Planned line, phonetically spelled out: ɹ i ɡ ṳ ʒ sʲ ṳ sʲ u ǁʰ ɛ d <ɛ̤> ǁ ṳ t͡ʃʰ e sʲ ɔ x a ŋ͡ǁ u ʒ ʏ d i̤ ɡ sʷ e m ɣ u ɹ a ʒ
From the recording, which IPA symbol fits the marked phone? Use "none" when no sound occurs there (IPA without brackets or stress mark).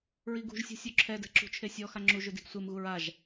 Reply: ɛ̤